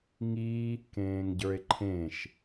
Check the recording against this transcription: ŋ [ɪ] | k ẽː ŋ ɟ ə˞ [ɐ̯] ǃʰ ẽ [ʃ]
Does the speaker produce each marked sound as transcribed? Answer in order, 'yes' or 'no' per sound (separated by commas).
no, no, yes